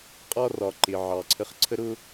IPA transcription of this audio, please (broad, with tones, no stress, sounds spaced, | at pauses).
qʼ ɒ˥ r ɒ˨ ǃ ɪ˨ ʕ ɑ˨ ǀʰ ə˦ χ ǀʰ ə˥ ɾ ʊ˥